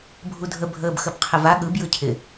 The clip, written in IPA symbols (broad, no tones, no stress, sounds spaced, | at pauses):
bʱ u dʱ ə bʱ əː b x ə b qʰ ɪ v a ɠ ɯ b j ɯ cʰ ɪ